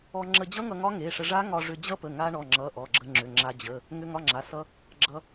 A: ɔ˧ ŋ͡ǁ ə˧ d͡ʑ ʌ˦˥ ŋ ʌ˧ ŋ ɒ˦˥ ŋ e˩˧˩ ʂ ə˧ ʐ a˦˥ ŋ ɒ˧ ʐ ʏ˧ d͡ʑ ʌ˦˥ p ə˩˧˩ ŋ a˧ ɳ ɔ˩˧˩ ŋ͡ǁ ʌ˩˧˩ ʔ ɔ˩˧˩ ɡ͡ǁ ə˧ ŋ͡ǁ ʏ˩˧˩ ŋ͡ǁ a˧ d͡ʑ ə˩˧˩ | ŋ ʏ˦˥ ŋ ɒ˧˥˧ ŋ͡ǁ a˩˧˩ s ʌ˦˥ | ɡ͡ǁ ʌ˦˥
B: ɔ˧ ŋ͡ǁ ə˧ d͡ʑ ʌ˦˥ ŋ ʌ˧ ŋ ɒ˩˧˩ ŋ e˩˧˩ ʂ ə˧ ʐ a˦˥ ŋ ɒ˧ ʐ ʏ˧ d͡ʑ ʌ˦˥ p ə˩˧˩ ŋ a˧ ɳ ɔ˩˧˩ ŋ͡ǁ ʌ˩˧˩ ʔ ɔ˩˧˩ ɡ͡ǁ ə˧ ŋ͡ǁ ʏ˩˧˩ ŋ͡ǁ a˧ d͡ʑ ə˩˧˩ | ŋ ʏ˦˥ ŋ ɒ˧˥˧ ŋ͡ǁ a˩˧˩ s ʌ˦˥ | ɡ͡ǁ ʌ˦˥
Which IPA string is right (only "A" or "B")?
A